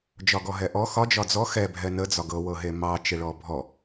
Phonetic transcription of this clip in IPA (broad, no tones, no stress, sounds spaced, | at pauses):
d͡ʒ ɒ ɡ ɔ ɦ ɛ ʔ ɔ x ɒ d͡ʒ ɒ d͡z ɔ x ɛ bʱ ɛ n ə d͡z ɒ ɡ ɤ w ɤ ɦ e m ɑ t͡ʃ e ɭ ɔ bʱ ɔ